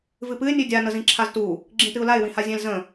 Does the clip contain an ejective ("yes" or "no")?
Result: no